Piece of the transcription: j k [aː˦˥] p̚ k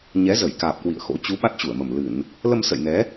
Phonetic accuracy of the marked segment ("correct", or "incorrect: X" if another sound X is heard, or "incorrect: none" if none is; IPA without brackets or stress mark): incorrect: aː˨˩